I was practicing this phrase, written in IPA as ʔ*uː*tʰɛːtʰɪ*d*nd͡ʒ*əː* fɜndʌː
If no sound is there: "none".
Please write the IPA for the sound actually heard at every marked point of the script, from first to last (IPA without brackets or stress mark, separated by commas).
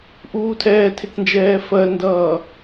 uː, t, ɛː